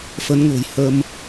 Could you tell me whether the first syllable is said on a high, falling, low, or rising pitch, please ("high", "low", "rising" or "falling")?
rising